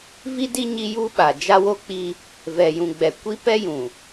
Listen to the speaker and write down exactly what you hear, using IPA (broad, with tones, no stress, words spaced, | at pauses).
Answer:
vi˦di˦ ɲi˦ju˦ɓa˨ d͡ʒa˦wo˦k͡pi˦ | vɛ˨jũ˨ɡ͡bɛ˨ kʷi˦pɛ˦jũ˨